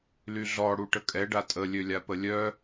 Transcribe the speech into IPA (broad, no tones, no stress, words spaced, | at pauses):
lyɮɔ ɽuʈəkʼɛ ɖatʼə lʲølʲapəlʲœ